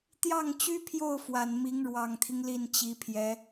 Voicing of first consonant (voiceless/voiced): voiceless